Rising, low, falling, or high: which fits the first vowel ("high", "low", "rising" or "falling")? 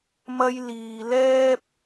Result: high